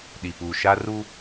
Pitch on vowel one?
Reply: low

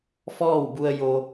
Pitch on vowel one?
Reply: falling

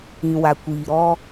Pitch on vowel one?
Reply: low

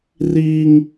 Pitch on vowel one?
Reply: high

